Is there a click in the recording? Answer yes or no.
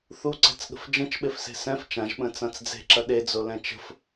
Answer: yes